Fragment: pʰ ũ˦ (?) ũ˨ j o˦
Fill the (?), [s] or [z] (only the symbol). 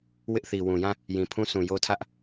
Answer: s